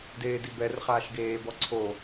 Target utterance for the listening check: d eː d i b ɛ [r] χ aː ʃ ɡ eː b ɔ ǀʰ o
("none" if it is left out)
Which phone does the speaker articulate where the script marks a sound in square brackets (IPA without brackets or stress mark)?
r